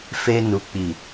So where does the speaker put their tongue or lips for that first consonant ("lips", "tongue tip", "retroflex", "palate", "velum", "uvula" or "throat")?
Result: lips